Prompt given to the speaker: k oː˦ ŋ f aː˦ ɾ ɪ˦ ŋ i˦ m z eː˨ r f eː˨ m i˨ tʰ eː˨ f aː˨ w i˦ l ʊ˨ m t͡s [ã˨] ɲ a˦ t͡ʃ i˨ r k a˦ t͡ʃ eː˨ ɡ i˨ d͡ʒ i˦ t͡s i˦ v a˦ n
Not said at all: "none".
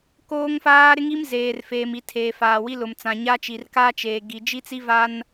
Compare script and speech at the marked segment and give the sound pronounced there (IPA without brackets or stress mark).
ã˨